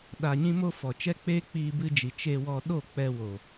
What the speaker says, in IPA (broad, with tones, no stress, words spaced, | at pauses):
ɗa˨ɲĩ˧mo˧ fɔ˨t͡ʃɛ˦k͡peː˦ k͡piː˧bɨ˧d͡ʒi˨ t͡ʃe˧wɔ˧ ɗo˦˨k͡pɛ˧wo˨